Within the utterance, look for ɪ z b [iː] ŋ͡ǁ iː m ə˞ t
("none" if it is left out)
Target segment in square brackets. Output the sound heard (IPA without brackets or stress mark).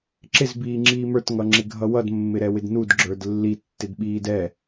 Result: iː